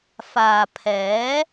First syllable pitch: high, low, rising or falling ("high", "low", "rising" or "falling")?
low